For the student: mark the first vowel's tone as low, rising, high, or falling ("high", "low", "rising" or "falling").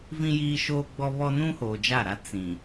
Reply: high